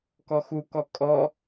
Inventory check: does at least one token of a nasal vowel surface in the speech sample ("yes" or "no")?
no